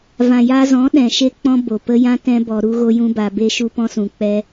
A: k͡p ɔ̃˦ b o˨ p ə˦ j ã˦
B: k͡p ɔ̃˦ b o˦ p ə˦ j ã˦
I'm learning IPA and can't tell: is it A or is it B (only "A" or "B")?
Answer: A